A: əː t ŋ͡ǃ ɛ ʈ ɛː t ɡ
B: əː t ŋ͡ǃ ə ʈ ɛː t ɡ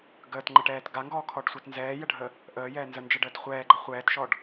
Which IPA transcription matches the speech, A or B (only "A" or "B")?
B